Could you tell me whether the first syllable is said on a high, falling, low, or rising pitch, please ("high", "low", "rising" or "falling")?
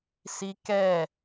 high